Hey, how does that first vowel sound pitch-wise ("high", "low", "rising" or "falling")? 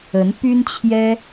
rising